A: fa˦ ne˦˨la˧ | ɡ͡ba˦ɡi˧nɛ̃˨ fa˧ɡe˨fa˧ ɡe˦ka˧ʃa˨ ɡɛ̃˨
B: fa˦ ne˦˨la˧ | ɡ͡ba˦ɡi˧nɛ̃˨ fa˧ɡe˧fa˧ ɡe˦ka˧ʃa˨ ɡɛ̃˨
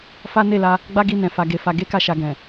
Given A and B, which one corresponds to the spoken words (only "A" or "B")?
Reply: B